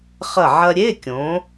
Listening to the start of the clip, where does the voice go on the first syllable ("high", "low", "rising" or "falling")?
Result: falling